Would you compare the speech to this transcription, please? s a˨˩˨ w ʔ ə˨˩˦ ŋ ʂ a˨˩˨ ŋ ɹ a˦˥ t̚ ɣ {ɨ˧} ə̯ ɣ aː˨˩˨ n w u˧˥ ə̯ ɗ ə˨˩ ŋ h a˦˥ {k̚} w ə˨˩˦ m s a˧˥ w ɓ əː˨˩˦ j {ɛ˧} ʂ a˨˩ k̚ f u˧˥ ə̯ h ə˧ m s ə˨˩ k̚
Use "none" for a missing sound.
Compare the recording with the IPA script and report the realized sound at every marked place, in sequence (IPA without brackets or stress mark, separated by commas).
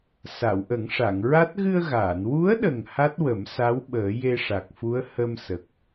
ɨ˧, t̚, e˧